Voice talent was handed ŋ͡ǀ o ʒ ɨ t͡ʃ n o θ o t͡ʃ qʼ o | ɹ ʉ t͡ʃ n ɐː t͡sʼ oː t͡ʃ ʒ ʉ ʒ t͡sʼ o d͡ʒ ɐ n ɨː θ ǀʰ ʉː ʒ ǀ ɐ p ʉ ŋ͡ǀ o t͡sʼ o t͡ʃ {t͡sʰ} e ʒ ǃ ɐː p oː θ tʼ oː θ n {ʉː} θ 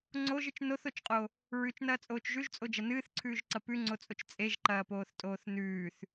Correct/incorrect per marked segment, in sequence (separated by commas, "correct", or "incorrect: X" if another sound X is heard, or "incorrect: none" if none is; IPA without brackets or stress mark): incorrect: t͡sʼ, correct